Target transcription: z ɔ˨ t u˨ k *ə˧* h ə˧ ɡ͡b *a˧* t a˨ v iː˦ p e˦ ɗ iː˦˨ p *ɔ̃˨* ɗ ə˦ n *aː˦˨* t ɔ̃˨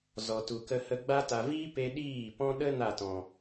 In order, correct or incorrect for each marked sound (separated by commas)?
correct, correct, incorrect, incorrect